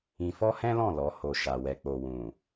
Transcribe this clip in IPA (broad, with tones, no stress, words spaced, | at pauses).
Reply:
ĩ˧fɔ˦hɛ̃˦lɔ̃˦˨ lɔ˨˦ho˧ ʃa˧wɛ˧k͡po˧ wũ˨